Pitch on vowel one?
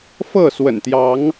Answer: falling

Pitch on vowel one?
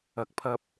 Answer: low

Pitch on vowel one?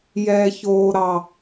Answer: low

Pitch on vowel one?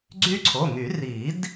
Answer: high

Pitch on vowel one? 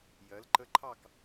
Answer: rising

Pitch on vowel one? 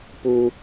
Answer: low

